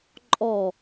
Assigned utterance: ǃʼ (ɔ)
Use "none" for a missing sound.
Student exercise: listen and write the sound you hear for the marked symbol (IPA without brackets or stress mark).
ɔ